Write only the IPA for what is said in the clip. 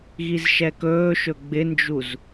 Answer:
ɣizʃɛkɵːʃɵ ɡ͡bɪnd͡ʒuz

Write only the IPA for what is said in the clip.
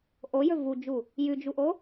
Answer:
ʔojɵ vud͡ʒu | jʉd͡ʒuʔo

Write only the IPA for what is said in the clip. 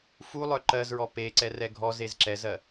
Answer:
fulˠœ ǃɜzɹɔ pe ǀɛrɛɡʱɔzez ǁɛzɜ

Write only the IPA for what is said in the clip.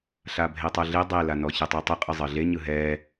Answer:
ɬabʱetˤɤɮe dˤelanɔ çɯtˤetˤɯ qʼɯzˤɤɮeɲɯ ɦɛ

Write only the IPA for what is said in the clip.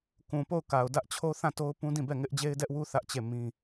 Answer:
kũ˨po˦˨ʊ̯ka˨ʊ̯ dä˦ʔt͡ɕʰo˦ θã˦˨to˦ʊ̯ pũ˦dĩ˦˨bɛ˦˨ ŋɪ˦ʔd͡ʑe˦ɪ̯dɛ˦ʔwu˦ θä˦ʔt͡ɕe˦˨ mĩ˦

